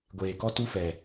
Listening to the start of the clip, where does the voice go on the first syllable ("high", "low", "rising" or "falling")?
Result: low